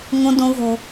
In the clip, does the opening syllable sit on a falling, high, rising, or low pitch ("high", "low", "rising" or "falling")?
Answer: high